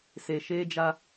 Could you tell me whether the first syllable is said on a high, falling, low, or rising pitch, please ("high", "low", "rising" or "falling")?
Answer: low